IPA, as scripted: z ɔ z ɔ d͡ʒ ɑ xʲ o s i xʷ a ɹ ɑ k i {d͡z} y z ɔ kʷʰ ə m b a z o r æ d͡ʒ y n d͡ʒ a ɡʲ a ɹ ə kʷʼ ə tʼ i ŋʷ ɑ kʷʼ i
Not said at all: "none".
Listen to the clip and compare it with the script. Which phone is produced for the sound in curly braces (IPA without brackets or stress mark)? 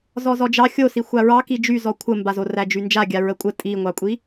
d͡ʒ